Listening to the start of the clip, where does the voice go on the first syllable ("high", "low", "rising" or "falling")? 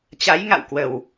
rising